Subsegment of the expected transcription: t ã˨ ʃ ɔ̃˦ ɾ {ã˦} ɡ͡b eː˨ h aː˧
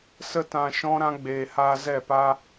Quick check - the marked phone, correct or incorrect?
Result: correct